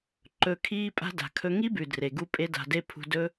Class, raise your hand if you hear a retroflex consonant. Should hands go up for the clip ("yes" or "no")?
no